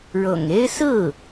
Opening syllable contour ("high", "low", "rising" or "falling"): low